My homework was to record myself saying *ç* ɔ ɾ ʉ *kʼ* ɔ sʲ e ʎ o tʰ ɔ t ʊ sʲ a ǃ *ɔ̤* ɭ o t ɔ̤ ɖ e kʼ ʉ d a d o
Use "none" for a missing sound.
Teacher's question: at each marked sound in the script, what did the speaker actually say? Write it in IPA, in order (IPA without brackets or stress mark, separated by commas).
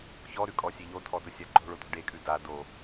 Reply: ç, kʼ, o̤